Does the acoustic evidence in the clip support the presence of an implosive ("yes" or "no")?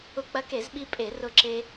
yes